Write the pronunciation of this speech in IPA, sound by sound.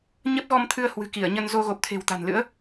ɲ ə˦˥ p̚ ɣ ɔ˧ m t̪ʰ ɨ˧ ə̯ h w ɨ̤˨˩ k i˧˩ ə̯ ɲ ə˧ n z o˧ ɣ o˨˩ p̚ t̪ʰ e̤˨˩ w t̪ a̤˨˩ n l ɨ̰˧˥ ə̯

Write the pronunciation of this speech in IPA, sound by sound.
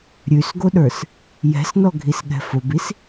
ɾʲ ʉ s ɡ o ɗ ə˞ s | j ɛ̤ s n ɔ ɡʱ i s ɠ ɛ̤ f o b i s

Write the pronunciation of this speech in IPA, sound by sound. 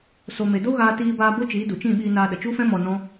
s o˨ m e˨ d o˦ ɣ aː˧ t iː˧ b aː˧ b o˦ t͡ʃ iː˨˦ d u˨ t͡ʃ ĩ˦˨ ɓ iː˧ n aː˧ ɗ ə˨ t͡ʃ u˦ f ɛ̃˦ m ɔ˧ n ɔ̃˦

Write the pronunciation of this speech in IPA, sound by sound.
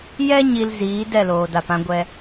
j ɛ˧ ɲ i˨ l z iː˨˦ d ɛ˦˨ l oː˨ d a˨ p ã˧ ɡʷ ɛ˧

